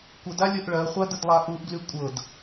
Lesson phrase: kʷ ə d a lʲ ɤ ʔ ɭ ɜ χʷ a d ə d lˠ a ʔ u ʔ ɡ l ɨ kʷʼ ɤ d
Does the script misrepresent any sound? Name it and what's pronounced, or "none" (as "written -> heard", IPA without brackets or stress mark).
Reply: ɨ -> y